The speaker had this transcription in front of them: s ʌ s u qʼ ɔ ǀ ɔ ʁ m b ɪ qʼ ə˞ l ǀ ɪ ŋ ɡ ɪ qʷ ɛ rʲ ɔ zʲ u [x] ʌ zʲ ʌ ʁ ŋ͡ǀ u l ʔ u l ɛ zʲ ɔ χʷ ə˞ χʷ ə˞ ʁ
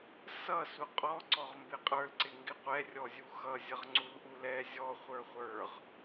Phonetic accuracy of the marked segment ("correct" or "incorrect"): correct